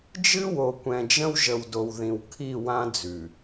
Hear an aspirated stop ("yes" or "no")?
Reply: yes